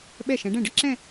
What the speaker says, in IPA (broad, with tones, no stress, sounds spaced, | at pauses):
ɓ ɛ˧˩ ʃ ɛ̃˩˧ ɖ ɛ̃˧˩ ɖ ə˥ ǁ ɛ̃˥˧